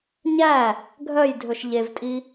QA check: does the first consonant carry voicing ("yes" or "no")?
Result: yes